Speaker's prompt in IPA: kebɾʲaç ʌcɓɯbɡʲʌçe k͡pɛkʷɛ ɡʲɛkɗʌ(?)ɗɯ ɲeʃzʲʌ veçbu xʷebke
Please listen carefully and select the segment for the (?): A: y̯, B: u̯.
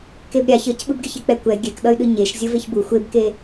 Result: A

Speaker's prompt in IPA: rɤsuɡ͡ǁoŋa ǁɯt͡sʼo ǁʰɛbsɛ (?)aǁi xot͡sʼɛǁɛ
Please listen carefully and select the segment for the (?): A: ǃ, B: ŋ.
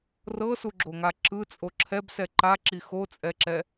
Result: A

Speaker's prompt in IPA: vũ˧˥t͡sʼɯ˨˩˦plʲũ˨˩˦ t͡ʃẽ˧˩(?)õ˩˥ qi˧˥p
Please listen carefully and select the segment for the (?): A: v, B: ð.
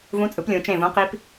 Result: A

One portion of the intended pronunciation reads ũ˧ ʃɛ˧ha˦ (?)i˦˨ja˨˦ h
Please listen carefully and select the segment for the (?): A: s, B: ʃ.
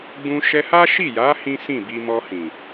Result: B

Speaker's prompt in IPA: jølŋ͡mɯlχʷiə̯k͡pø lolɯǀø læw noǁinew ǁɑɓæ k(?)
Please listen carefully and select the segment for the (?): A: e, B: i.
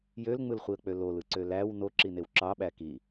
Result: B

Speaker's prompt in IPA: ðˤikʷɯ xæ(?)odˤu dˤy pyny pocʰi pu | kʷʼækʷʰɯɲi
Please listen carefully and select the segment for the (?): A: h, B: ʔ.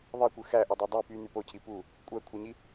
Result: B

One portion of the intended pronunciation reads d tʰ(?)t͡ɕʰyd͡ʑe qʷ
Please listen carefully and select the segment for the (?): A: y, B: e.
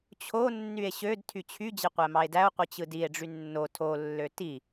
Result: A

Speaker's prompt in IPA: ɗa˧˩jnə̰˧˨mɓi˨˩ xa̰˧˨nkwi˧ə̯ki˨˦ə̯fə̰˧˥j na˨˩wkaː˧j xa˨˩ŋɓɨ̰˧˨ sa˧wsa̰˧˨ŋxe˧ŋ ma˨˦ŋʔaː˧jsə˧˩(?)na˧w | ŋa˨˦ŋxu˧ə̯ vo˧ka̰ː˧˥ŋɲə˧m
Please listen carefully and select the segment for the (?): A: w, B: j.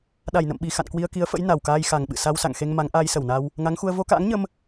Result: A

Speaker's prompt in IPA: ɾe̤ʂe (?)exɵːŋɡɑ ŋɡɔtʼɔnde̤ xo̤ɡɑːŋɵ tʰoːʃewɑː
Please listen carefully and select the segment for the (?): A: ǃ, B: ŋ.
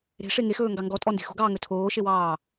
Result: B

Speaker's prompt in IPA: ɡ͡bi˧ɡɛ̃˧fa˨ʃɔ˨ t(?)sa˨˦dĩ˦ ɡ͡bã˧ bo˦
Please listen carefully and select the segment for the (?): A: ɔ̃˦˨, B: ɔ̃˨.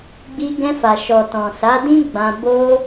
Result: B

